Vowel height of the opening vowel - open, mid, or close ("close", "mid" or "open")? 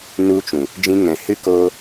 close